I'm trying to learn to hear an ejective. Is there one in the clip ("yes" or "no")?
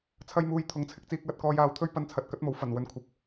no